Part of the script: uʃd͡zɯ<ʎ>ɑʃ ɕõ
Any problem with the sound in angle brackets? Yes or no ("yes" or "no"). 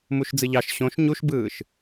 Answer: no